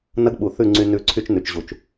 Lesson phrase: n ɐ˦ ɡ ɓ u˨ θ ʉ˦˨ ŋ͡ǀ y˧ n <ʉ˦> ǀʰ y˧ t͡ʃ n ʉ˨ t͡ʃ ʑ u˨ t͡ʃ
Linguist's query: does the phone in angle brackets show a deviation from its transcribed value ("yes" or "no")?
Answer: yes